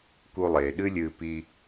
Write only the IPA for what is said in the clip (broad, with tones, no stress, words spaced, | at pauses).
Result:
ku˧lˠeː˨ɗɨ˦lʲɨː˧ pi˧